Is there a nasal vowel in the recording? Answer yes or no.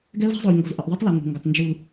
no